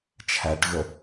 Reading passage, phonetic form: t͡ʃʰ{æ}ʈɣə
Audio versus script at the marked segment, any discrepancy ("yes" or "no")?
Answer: no